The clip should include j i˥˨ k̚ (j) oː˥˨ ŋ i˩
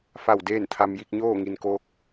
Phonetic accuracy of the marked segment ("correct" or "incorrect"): incorrect